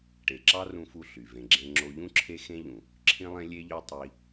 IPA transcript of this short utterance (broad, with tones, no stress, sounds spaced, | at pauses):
ʈ e˨ ǁ ɑ˦ r ũ˧ f u˧ ɬ y˨ v ẽ˧ ɡ͡ǁ ẽ˦ ŋ͡ǁ o˧ ʎ ũ˦ ǁʰ e˦ x ẽ˦ ʎ ũ˨ | ǁʰ ĩ˦ lˠ ẽ˦ lʲ e˦ ʎ ø˦ tˤ i˦